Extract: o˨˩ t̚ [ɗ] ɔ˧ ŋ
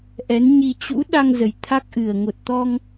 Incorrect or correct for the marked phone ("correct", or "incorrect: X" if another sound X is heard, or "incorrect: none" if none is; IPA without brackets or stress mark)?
incorrect: t̪